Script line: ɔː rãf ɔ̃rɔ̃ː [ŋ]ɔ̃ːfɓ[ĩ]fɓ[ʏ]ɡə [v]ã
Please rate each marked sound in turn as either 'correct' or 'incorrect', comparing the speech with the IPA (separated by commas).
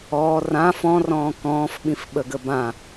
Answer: incorrect, correct, incorrect, incorrect